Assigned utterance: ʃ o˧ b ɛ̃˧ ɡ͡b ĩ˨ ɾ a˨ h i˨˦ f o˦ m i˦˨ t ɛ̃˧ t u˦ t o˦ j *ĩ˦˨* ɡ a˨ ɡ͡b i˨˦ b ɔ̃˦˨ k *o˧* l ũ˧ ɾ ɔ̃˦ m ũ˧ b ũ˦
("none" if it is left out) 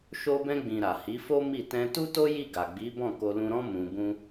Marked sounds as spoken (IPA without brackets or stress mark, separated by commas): i˦˨, o˧